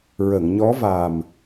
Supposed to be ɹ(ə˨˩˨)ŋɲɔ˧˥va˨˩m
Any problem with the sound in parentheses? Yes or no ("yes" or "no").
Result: no